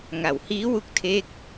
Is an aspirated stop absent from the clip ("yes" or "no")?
no